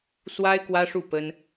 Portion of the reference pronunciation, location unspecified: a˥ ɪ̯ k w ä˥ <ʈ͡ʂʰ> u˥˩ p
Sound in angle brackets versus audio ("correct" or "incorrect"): incorrect